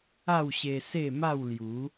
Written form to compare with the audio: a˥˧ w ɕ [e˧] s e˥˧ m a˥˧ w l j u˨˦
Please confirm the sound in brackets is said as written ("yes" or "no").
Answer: yes